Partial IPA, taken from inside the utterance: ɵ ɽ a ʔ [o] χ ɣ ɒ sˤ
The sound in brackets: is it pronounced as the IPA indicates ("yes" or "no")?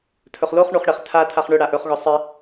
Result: no